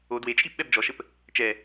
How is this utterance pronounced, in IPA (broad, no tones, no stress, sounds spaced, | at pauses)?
o d w e t͡ʃʼ i p ɓ ɛ b d͡ʒ ɔ ʃ ə p | t͡ʃ ɛ